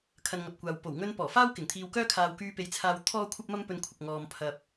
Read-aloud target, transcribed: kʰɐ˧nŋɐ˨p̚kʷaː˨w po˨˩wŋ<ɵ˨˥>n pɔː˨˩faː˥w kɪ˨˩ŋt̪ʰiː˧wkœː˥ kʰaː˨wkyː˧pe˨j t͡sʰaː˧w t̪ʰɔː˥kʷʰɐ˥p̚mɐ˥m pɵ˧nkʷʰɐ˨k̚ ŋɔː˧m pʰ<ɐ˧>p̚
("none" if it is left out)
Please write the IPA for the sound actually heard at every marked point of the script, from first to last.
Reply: ɵ˧, ɐ˨

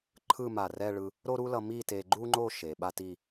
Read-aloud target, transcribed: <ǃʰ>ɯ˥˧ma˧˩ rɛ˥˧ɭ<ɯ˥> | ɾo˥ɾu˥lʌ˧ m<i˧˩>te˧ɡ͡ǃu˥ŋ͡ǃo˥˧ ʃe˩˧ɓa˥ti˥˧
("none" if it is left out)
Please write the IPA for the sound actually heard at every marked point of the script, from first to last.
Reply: ǃʰ, ɯ˧, i˥˧

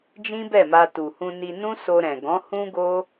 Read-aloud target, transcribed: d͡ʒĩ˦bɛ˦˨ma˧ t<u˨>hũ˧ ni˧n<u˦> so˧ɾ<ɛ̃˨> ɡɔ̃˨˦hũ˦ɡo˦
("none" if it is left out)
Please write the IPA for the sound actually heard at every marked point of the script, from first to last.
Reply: u˨, ũ˦, ɛ̃˨

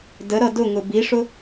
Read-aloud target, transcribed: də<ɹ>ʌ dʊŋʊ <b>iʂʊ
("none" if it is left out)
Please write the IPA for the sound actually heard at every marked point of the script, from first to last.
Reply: ɾ, b

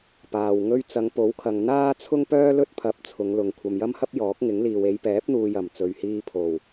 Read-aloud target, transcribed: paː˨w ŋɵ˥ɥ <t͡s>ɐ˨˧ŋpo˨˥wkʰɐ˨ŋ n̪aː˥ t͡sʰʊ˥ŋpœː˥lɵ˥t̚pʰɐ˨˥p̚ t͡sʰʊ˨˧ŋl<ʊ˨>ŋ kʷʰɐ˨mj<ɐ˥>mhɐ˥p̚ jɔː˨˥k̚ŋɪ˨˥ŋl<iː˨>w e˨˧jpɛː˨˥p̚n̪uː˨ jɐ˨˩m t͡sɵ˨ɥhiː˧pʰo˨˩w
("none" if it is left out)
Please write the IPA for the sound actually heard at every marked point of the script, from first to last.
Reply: t͡s, ʊ˨, ɐ˥, iː˨

